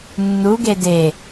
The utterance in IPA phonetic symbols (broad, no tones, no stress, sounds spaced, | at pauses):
nː u ɡ e d e